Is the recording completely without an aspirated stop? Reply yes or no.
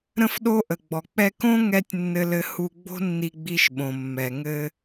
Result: yes